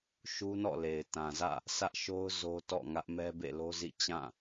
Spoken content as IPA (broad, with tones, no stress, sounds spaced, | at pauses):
ʃ u˦ n ɔ̰˦˨ l e˨ ɪ̯ t ã˨ z ä̰˦˨ | s ä˦ ʔ ʃ o˦ ʊ̯ z o˦ t ɔ̰˦˨ ŋ ä˦ ʔ m ɛ˦ b ḛ˦˨ l o˦ z ḭ˦˨ t͡ɕ ã˦˨